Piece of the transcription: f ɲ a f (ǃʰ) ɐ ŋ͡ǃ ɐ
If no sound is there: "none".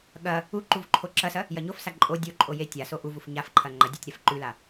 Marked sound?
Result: ǃʰ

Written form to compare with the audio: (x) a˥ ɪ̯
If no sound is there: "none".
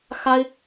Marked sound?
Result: x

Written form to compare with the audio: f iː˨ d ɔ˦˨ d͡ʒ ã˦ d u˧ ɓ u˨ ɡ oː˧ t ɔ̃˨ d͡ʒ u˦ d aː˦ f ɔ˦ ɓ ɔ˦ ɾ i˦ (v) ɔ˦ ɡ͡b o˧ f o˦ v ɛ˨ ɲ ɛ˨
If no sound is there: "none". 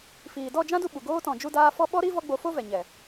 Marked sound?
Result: v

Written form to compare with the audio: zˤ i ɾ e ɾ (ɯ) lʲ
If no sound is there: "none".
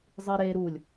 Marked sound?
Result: u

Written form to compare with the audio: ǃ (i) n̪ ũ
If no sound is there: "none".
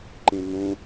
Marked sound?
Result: ĩ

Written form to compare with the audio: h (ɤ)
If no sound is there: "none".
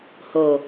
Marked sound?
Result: o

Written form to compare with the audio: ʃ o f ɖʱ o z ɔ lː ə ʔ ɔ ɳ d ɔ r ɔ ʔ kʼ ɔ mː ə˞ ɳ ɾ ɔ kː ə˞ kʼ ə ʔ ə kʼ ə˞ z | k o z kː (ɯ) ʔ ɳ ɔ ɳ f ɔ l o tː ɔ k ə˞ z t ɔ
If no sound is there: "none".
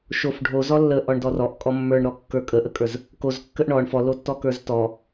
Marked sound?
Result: ə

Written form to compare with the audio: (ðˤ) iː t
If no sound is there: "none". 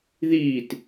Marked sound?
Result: ð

